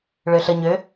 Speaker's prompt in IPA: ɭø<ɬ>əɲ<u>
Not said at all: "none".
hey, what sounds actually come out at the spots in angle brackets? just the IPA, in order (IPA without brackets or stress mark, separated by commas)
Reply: ɬ, ø